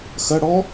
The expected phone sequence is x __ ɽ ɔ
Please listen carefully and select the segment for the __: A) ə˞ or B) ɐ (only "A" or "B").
B